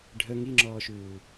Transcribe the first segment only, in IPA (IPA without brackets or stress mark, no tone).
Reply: ɖʱ